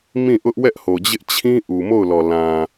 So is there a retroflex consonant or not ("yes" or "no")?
no